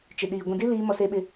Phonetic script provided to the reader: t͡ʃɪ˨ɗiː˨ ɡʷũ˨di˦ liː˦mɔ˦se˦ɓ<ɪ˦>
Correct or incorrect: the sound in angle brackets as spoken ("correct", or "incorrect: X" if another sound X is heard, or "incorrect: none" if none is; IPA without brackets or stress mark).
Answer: correct